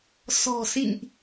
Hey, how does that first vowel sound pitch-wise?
low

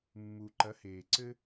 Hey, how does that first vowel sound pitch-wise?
low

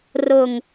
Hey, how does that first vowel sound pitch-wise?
low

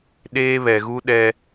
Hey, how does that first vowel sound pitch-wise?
high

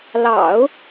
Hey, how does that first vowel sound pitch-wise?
low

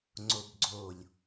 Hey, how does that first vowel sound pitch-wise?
low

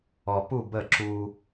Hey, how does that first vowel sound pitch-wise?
low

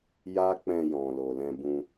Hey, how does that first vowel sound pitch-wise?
high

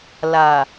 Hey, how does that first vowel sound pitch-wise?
low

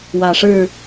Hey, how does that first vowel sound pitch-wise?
low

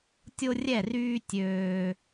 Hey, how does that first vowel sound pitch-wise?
high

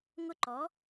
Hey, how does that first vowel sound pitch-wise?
high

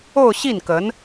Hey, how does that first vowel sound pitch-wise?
falling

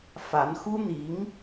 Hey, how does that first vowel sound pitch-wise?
rising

